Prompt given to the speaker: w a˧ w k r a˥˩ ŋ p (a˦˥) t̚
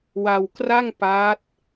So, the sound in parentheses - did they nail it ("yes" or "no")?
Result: yes